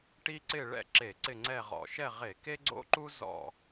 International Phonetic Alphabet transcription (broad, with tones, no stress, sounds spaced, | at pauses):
ʈ i˦ ǀ ɪ˦˨ ɭ ɛ̰˦˨ ǁ e˧˩˧ ǀ ɪ˦˨ ŋ͡ǀ ɛ˦˨ ʁ ɔ̰˨˩ ʃ ɛ˦˨ ʁ e˧˩˧ k e˦ ɡ͡ǀ o̰˦ ǃ u˦ z ɔ̰˦˨